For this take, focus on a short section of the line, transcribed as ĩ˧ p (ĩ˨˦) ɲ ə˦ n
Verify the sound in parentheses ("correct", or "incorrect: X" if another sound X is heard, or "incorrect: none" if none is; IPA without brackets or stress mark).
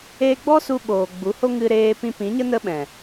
correct